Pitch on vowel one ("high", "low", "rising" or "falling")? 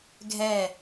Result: falling